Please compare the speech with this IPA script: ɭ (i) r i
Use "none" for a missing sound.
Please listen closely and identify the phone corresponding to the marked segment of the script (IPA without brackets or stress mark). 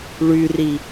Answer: y